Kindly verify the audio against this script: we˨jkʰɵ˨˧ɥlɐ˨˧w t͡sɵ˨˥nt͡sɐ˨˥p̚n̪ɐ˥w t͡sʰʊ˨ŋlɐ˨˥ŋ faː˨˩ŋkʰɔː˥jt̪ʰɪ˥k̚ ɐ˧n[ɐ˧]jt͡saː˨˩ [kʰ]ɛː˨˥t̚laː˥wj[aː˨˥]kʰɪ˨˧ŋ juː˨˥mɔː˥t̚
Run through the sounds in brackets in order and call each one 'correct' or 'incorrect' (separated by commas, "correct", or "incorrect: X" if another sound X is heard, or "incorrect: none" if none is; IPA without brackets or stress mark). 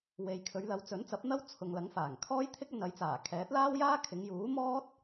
incorrect: ɐ˨˥, correct, incorrect: aː˥